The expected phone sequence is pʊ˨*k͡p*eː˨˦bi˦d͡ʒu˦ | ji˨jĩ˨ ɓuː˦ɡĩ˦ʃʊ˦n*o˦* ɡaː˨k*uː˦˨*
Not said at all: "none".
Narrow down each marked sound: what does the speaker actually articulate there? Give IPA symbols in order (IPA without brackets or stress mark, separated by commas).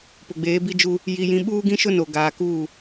ɡ͡b, o˨, uː˦˨